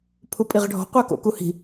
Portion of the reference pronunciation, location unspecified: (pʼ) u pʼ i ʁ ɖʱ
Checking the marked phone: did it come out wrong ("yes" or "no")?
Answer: yes